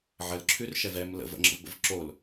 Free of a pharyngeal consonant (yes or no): no